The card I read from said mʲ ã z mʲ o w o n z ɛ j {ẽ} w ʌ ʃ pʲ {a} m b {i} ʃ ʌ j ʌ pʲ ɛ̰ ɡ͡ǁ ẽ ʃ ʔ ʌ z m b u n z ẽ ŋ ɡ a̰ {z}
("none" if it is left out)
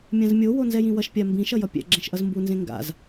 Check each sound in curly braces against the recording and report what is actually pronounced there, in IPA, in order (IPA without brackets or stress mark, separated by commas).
ĩ, a, ĩ, z